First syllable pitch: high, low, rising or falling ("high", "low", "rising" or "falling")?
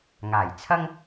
low